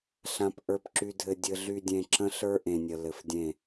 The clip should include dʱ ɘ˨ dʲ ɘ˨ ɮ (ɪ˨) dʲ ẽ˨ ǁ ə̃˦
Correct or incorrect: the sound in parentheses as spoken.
incorrect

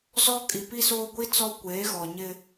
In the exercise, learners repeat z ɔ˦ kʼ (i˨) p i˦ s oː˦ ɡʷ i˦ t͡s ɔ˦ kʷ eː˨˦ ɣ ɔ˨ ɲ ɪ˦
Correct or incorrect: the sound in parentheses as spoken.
correct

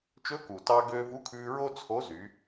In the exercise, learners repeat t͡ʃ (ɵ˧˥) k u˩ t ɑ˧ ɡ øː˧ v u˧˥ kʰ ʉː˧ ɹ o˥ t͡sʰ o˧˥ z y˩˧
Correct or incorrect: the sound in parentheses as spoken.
correct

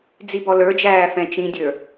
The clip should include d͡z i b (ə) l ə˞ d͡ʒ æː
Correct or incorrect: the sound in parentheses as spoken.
incorrect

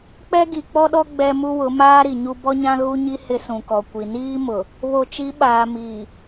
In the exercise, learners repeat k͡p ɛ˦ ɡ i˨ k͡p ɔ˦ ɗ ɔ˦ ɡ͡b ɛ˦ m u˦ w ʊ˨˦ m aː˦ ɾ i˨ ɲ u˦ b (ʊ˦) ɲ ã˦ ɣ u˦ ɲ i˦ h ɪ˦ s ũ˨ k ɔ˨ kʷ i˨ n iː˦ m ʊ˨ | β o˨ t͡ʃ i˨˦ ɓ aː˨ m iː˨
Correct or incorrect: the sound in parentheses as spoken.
incorrect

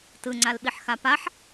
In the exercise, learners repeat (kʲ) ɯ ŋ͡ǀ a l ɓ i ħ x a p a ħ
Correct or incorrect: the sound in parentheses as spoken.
incorrect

